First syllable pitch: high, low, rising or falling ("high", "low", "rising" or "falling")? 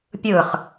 falling